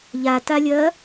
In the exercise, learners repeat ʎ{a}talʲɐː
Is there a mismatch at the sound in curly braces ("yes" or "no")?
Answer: no